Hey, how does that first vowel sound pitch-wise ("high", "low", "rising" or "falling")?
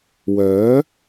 rising